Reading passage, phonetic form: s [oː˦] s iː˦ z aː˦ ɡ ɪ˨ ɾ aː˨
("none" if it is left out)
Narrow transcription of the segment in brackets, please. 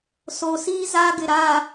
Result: oː˨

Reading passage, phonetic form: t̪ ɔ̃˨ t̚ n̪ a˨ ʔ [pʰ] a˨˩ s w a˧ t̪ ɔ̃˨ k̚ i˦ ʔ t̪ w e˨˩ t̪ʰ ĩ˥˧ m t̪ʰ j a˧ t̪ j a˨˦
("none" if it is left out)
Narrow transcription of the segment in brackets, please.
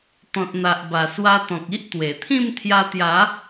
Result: b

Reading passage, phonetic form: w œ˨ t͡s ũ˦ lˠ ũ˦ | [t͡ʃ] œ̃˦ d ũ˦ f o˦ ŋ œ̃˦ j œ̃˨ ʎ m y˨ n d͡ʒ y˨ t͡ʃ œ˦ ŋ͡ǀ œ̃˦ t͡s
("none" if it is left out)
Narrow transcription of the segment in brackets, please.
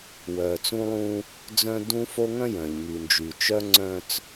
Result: d͡z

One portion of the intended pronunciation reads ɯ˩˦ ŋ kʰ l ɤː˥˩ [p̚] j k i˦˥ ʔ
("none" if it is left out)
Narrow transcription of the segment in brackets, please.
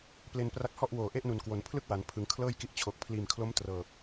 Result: none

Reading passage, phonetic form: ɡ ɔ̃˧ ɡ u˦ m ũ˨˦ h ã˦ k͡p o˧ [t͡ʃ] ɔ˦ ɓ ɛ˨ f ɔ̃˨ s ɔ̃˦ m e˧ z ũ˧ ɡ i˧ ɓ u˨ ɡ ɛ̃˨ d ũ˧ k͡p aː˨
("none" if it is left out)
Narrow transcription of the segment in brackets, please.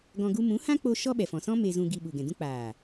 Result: ʃ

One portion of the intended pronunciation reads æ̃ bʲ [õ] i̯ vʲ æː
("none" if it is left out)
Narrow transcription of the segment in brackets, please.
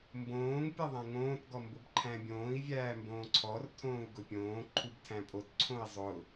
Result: õː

